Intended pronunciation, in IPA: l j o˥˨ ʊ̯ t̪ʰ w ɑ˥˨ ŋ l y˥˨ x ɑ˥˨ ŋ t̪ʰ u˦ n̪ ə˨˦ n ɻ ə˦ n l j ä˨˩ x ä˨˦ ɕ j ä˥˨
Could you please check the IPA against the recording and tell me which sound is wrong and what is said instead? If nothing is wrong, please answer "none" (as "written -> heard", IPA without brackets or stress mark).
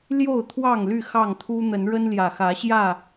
none